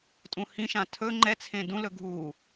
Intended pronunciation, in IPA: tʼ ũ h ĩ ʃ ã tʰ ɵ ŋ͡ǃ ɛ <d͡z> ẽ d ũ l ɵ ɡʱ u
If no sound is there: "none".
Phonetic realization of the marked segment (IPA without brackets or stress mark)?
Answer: t͡sʰ